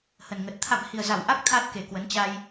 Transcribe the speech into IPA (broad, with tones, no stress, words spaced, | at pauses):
hə˨˩nŋə˨˩t̚ t̪ʰa̰˧˨mhi˨˩ə̯za˧˩w ʔa˦˥k̚ t̪ʰa˦˥t̚ ke˨˩kwə˨˦nt͡ɕa˧j